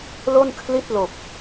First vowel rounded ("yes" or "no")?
yes